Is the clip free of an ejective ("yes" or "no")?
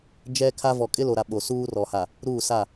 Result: no